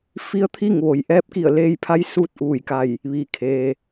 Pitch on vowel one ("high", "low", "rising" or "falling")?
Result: rising